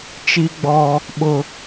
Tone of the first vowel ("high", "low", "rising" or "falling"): high